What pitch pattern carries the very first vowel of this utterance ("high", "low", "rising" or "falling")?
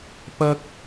high